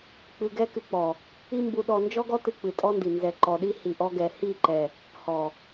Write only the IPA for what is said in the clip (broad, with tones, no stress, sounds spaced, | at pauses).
k͡p ɨ˧ ɡ ɛ˦ k ɨ˧ k͡p ɔ˨ | i˦ m b u˧ ɗ ɔ˧ n d͡ʒ ɔ˦ ɡ ɔ˦ t ɨ˧ k͡p ɨ˨ tʼ ɔ˦ n d i˨ n z ɛ˨ ǃ ɔ˨ ɗ i˦ h i˨ ʔ ɔ˧ ɡ ɛ˨ h i˦˨ ǃ ɛ˨ | h ɔ˨